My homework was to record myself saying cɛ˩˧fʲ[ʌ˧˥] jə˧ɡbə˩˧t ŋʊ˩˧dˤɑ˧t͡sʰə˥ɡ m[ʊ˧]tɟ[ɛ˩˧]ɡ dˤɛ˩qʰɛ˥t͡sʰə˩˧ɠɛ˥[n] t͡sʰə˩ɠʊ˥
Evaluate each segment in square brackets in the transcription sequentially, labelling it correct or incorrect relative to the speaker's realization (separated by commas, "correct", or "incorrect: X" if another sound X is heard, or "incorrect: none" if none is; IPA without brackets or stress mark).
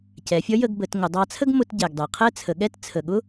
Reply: correct, correct, incorrect: ɛ˩, incorrect: t